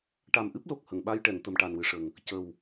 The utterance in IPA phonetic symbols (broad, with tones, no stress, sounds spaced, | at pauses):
ʈ a˨˩ m ʔ ɨ˦˥ p̚ l o˨˩ k̚ h ə˨˩˨ ŋ ɓ a˧ j ʈ ɛ˨˩˨ ŋ t̪ ə˨˩ m ʈ a˨˩ n w ɨ˨˩ ʂ ə˨˩ ŋ | c ə˨˩ w